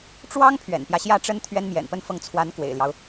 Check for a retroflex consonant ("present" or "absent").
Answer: present